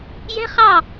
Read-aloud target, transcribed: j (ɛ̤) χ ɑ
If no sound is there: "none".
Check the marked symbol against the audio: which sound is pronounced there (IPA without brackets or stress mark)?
ɛ̤